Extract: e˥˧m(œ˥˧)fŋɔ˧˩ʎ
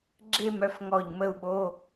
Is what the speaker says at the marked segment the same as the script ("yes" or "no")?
yes